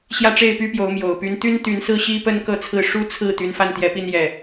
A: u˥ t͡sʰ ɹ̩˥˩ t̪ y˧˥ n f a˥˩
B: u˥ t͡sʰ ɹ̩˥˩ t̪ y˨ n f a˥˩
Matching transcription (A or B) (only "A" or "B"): A